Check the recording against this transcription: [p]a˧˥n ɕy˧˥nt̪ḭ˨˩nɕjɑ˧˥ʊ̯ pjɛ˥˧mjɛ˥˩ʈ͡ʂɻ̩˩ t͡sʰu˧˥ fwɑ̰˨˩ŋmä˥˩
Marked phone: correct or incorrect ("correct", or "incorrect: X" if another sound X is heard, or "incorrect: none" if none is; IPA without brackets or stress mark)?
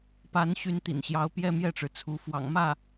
correct